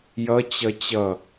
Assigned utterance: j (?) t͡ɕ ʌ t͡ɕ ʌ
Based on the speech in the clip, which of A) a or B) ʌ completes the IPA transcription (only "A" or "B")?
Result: B